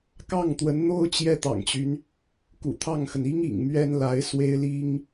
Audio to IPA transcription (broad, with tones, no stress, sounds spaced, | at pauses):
k ɑ˥˩ ŋ t̪ w ə˧˥ n n̪ o˥ ʊ̯ t͡ɕ j ɛ˥ t̪ ɑ̰˨˩ ŋ t͡ɕ y˦ n | k ṵ˨˩ t̪ʰ ɑ˥˩ ŋ x ə˩ n i˥ ŋ ḭ˨˩ ŋ m ɥ ɛ˥ n l a˧˥ ɪ̯ s w e˥ ɪ̯ l i˥ ŋ